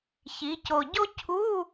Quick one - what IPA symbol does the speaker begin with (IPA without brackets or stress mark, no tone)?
ç